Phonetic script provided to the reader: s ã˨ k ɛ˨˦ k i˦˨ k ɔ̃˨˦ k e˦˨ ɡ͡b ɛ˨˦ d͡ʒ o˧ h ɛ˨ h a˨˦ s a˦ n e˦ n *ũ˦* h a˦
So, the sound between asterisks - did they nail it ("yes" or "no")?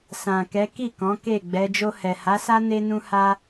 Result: yes